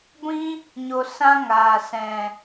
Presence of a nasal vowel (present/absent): present